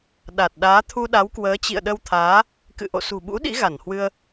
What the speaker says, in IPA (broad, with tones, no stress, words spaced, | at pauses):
ɗa˨˩t̚ ɗaː˨˦t̪ʰu˧ɗa˨˦wkwəː˨˦ t͡ɕḭ˧˨ə̯ɗə˧wt̪ʰaː˨˦ | kɨ̰˧˨ʔo̰˧˨sṳ˨˩ɓṵ˧˥ ɗḭ˧˥ɣa˧˩nhwɨ˧ə̯